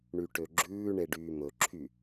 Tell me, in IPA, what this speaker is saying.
ɳ y ʈ ø ɡ͡ǁ ʉː ɳ e ɖ yː m ɵ ǁʰ y

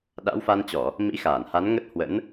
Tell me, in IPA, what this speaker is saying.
ɗ a̰˧˥ w f a˧ n t͡ɕ ɔ˧˩˨ | m ḭ˧˥ x aː˧˩ n h a˨˦ n ŋ ə˦˥ t̚ h w ə̰˧˥ n

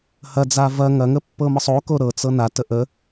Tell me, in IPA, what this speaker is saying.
h ɐ d͡z a v ɐ ŋ ɐ ŋ ə pː ɤ m ɤ sˤ o k o ɾ ɤ t͡s ɤ n a t ə ʔ ə

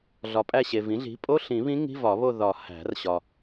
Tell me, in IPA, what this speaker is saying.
ɮ ɒ˨ pʼ æ˦˨ ɕ e˨ v ĩ˩˥ ɮ i̤˩˥ pʼ o˧˥˧ ɬ ĩ˨˩˦ β ĩ˧˥ ŋ i̤˧˥˧ v ɒ˨˩˦ β o˦˨ ð ɒ˨˩˦ h æ̤˨˩˦ r ɕ ɒ˨

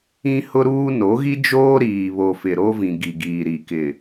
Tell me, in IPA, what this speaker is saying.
ĩ˦ h ʊ˦ ɾ uː˦ n o˨˦ ɣ i˦ d͡ʒ oː˦ ɾ iː˨ β o˨ f ɪ˨ ɾ o˦ v ĩ˨ ɡ i˨ ɡ iː˨ ɾ i˨ k ɪ˨

